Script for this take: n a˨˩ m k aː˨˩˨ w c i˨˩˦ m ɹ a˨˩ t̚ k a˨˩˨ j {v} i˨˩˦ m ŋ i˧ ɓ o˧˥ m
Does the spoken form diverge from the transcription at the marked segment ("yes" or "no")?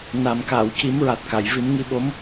no